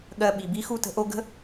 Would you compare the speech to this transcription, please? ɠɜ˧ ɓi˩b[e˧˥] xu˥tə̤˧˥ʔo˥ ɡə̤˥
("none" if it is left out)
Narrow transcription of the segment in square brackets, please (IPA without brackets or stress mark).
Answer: i˧˥